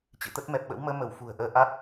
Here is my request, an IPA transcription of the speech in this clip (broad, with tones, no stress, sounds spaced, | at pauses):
t͡ɕ ɨ̰˧˨ t̪ ə˦˥ t̚ m ɛ˨˩ p̚ ɓ ə̰˧˥ w m əː˨˦ m ə˧˩ w f ṳ˨˩ ə̯ ʔ əː˨˦ ʔ a˦˥ t̚